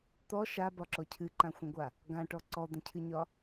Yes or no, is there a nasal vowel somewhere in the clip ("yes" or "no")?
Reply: yes